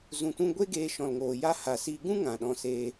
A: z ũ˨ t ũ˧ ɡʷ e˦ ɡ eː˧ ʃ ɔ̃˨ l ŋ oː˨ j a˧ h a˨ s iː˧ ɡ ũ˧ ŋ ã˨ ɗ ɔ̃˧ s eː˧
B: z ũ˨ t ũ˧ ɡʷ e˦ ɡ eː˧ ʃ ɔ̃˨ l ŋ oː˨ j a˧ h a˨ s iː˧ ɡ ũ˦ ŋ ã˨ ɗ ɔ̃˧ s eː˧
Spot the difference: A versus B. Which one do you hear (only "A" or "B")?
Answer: B